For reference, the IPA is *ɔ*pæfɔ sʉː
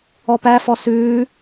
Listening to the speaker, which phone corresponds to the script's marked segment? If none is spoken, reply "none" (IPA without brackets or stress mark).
ɔ